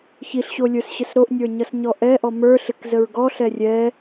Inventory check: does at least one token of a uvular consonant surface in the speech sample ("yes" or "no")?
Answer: no